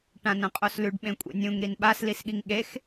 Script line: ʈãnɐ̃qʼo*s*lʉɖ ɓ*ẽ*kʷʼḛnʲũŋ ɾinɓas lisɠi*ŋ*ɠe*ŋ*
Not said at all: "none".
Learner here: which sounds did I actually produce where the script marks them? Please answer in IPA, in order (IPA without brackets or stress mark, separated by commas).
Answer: s, ẽ, ŋ, x